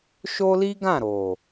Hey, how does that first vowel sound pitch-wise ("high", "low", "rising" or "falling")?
high